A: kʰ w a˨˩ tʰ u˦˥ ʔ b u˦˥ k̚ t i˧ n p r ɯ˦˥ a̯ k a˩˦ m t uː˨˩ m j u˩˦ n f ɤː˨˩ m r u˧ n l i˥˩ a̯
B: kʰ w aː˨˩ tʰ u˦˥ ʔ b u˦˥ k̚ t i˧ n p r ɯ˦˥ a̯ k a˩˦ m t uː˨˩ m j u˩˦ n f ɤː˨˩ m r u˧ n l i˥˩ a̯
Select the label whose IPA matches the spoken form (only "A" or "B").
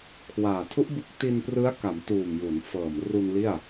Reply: B